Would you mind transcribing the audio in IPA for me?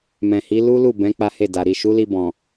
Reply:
m ɛ̃˨ h i˨˦ l u˦ l u˦˨ b ɛ̃˨˦ k͡p a˦ h e˦˨ d a˨ ɾ i˨ ʃ u˨˦ l i˧ b ɔ̃˨

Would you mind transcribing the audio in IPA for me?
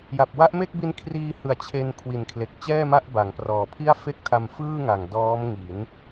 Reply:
j a˨˩ p̚ w a˦˥ ʔ m e˥˩ k̚ b i˧ n kʰ r iː˧ h ɯ˨˩ a̯ t͡ɕʰ e˧ n kʰ w i˨˩ n kʰ l e˨˩ k̚ t͡ɕ ɛː˥˩ m a˥˩ ʔ b a˩˦ ŋ p r ɔː˨˩ pʰ i˥˩ a̯ f e˥˩ k̚ tʰ a˧ m f ɯː˥˩ ŋ a˨˩ ŋ d ɔː˦˥ m ŋ i˩˦ n

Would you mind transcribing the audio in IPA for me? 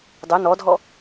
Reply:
dˤ ɵ n ɔ dʱ ɔ

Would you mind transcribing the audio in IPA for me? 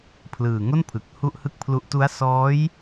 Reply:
pʰ l ɯː˨˩ ŋ o˥˩ n pʰ ɯ˨˩ k̚ h u˥˩ ʔ h ɯ˥˩ k̚ pʰ l u˦˥ ʔ t u˦˥ a̯ s ɔː˦˥ j

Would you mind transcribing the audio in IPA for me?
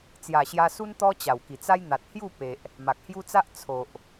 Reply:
t͡s j a˨˩ ɕ j a˧ s u˦ n t̪ ɔ˦ t͡ɕ a˨˩ w k i˨˩ t͡s a˦ j n̪ a˨ t̚ h j u˥˧ p e˨ ʔ | m a˨ k̚ h j u˦ t͡s a˦ ʔ t͡sʰ o˨ ʔ

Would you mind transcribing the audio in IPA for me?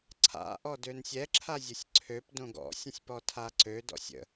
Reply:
ǀʰ a̰ ʔ ɔ d ø n sʲ ɛ ǁʰ a zʲ ə sʲ ǀʰ ø p d õ ɡ ɔ̰ sʲ ə̃ sʲ p ɔ tʰ a ǀ ø d ɔ̰ sʲ ə̰

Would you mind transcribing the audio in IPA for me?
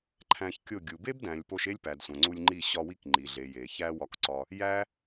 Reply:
ǃʰ æ̃˧ ç kʲ o˦˨ ɡʲ u˨ b e˦ b d æ̃˨ lʲ p o˧ ʃ e˦ lʲ p æ˨ d sʷ æ̃˨ ŋ͡ǀ u˧ lʲ ŋ͡ǃ i˦˨ ɕ ɒ˧ w i˦˨ k ŋ͡ǃ i˨ ɮ e˨ j e˨ ç æ˦ w ɒ˧ k ǀ ɒ˧ | j æ˦

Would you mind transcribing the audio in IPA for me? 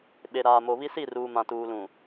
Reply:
ɓ e˨ ɾ aː˨ m o˨ β i˦ s i˦˨ r uː˨ m ã˨ t uː˨ l ũ˨

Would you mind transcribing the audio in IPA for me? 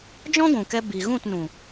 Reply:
d͡ʒ ɔ̃˦ ɡʷ ũ˨ k ɛ˧ b i˨ ɣ ũ˦˨ t n ũ˨

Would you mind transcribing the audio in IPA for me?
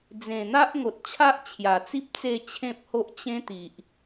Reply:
d͡z ẽ˨˩ n̪ a˦ ʔ ŋ o˨ t̚ t͡ɕʰ a˦ ʔ t͡ɕʰ j a˨˩ t͡s i˦ p̚ t͡s e˥˧ t͡ɕʰ ẽ˦ p̚ h o˦ ʔ t͡ɕ ẽ˦ t̪ i˨ ʔ

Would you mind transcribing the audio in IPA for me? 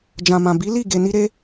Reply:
d͡ʒ ã˨ m ã˨ b i˨˦ l i˦˨ ɡ e˨ n i˧ ɾ e˧

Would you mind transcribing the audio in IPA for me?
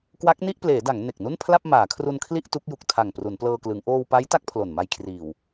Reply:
k w a˦˥ k̚ n i˥˩ ʔ p l eː˩˦ d a˩˦ ŋ n e˨˩ k̚ n u˥˩ n pʰ l a˥˩ p̚ m aː˩˦ kʰ r u˧ n kʰ l i˥˩ ʔ t u˦˥ k̚ j u˨˩ k̚ tʰ a˨˩ ŋ p r u˩˦ n p l ɤː˧ k l ɯ˩˦ ŋ ʔ oː˧ w p a˦˥ j t a˦˥ k̚ pʰ l o˨˩ n m a˧ j kʰ r iː˨˩ w

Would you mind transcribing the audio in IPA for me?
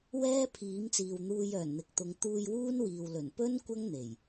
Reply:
w ɛː˥ pʰ iː˨˥ m t͡s iː˨ w n̪ uː˧ j œː˨˩ n n̪ ɪ˨ k̚ t̪ ʊ˨˧ ŋ t̪ uː˧ j w uː˥ n w iː˨ w l ɵ˨˩ n p ɵ˥ n kʷ ɐ˥ ŋ n̪ e˨˩ j

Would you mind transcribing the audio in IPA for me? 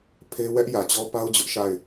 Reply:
pʰ e˦ w ɛ˦ ʔ j ä˨ t͡ɕ ɔ˦ p a˦ ʊ̯ d͡ʑ ʊ˦ ʔ ʃ a˦˨ ɪ̯

